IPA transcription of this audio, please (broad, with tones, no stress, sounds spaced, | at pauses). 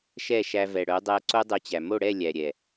ʃ ɛ˦˨ ʃ æ˧ v ɛ˨ ɽ œ˨˦ dˤ æ˧ ǀ o˦ dˤ œ˧ t͡ɕ æ˨ m o˦˨ ɽ ɛ˦˨ lʲ æ˨ ɾʲ ɛ˨